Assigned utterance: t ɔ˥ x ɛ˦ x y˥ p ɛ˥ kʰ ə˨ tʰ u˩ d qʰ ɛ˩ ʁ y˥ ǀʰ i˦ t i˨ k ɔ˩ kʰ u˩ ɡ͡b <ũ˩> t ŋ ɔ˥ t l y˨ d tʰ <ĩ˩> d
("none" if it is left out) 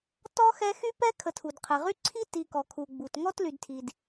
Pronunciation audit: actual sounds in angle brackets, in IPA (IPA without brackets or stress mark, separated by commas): u˩, i˩